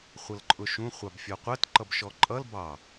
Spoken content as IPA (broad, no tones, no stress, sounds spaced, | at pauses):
χʷ ʌ l ǃʼ ʊ ʃ ũ χʷ ɑ b fʲ ɔ qʷ ɜ t ǃ ʌ b ʃ ɔ ǃʼ ʌ l b ɑ